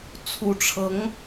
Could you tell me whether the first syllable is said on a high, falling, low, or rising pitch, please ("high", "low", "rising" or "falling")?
rising